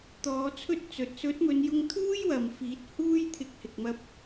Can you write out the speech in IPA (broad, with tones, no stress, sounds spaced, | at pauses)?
t̪ ɔː˨˧ t͡sʰ ɵ˥ t̚ t͡s ɵ˨ t̚ s ɵ˨˥ t̚ m ɵ˨˧ n j ʊ˧ ŋ t̪ʰ uː˥ j w ɐ˨ m f iː˨˥ t̚ h uː˥ j t̪ʰ ɪ˧ k̚ h ɪ˨ k̚ m ɐ˧ p̚